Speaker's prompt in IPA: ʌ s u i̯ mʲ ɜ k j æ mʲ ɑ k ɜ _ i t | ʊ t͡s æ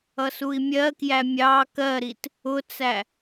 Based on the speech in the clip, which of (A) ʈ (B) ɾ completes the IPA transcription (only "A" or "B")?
B